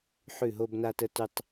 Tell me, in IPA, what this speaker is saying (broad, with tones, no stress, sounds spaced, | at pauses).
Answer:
ħ ʉ˧˩ ɦ o˧ b n a˧ t ə˧ t ʉ˧ tˤ